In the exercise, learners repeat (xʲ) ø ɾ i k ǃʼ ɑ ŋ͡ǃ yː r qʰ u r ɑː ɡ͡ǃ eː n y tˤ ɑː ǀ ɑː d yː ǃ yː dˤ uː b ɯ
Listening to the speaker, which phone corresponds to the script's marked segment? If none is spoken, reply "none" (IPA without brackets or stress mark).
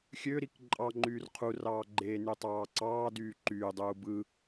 xʲ